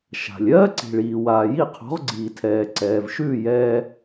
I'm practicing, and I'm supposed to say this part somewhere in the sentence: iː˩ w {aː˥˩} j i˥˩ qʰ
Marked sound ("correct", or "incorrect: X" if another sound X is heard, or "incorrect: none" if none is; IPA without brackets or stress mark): incorrect: aː˩